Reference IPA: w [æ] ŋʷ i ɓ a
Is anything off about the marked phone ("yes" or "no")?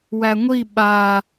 no